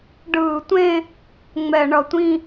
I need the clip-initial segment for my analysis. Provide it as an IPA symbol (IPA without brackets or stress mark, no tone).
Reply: ɖ